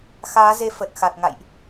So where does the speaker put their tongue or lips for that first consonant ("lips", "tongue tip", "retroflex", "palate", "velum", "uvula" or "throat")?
velum